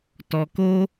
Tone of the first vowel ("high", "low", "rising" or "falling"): low